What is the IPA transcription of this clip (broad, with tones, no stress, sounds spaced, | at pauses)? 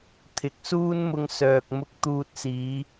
t̪ʰ ɪ˨˥ k̚ s uː˥ n m ʊ˧ ŋ s œː˨ k̚ m ʊ˧ k̚ t̪ uː˧ t̚ s iː˨˧